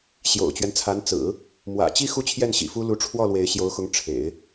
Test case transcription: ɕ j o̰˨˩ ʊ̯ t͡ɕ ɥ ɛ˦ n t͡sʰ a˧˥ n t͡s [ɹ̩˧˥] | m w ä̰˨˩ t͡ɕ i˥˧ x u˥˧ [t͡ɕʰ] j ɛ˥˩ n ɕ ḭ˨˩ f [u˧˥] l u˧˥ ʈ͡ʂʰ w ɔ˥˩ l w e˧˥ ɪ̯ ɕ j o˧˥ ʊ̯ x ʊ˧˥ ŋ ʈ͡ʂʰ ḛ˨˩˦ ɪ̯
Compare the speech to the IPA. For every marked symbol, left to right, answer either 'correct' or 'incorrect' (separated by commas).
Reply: incorrect, correct, incorrect